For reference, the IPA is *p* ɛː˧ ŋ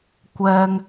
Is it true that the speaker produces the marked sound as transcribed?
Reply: no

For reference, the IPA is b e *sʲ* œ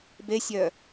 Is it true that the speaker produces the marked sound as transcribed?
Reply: yes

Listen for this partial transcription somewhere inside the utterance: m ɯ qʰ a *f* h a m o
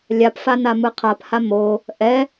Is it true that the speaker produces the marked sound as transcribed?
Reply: no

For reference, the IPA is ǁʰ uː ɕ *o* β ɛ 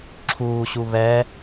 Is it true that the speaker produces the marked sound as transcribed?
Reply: no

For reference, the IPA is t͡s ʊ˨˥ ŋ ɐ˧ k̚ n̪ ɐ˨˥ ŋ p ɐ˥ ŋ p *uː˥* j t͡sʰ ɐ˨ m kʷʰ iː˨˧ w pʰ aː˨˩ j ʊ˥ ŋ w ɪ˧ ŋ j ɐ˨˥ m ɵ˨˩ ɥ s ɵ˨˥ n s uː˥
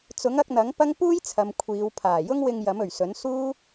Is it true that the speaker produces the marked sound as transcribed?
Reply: yes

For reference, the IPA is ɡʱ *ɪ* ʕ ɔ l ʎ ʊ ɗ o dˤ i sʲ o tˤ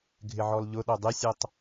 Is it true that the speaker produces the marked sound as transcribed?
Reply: yes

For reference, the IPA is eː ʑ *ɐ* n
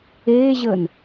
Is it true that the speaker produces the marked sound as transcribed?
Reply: no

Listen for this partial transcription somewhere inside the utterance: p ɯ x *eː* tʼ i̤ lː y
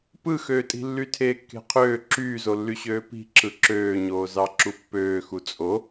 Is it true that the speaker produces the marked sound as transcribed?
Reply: no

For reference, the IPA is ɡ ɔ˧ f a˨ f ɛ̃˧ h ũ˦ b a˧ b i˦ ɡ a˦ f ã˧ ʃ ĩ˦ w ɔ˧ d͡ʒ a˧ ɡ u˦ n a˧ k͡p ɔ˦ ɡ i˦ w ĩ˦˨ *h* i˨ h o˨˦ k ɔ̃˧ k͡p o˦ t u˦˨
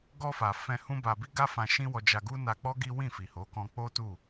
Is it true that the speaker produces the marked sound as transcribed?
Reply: no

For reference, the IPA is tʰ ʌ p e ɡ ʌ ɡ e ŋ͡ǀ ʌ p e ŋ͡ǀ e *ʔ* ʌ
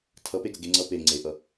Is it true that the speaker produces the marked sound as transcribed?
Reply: yes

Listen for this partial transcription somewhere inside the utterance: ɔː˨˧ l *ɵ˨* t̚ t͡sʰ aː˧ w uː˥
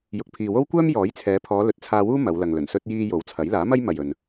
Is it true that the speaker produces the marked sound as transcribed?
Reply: yes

